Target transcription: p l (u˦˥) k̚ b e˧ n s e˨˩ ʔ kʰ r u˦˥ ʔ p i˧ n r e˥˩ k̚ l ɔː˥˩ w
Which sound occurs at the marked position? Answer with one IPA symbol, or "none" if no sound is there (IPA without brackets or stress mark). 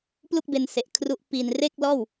u˥˩